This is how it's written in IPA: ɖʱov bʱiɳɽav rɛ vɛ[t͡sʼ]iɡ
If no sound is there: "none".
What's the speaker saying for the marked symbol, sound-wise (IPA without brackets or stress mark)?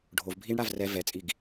t͡sʼ